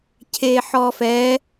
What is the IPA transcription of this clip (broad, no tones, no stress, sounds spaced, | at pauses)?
cʰ e ħ ɔ f ɛ